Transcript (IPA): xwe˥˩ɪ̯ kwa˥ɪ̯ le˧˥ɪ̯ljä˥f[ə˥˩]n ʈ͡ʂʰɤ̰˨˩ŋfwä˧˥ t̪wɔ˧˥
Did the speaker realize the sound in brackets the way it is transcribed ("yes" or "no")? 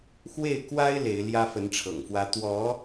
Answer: no